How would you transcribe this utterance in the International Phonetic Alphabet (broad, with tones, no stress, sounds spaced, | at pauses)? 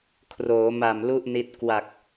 kʰ r oː˩˦ m a˨˩ m l u˥˩ ʔ n i˦˥ t̚ k w a˨˩ k̚